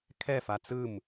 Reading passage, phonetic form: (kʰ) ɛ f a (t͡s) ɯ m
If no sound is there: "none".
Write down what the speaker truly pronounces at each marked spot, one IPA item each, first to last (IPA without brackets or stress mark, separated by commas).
kʰ, t͡s